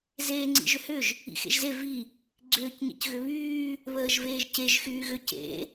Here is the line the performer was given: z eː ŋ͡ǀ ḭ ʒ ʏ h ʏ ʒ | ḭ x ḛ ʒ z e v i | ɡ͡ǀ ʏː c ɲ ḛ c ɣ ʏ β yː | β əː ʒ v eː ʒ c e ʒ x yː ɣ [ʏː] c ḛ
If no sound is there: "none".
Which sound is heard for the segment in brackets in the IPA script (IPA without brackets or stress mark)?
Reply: ʏ